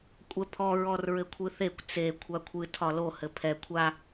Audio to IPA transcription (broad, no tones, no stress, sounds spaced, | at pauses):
kʷʼ ɛ pʰ ɔ ɹ ɔ r ɹ ɘ kʷʰ ɨ θ e kʷ t͡s e kʷʰ a kʷʰ ɨ tʰ ɒ l o h ɘ pʰ ɛ kʷʰ a